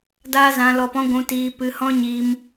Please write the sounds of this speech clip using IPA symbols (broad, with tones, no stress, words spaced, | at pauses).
daː˦zã˧lɔ˧pɔ̃˦ ɡʷũ˧tiː˧ pɨ˧hɔ̃˦ɲi˧m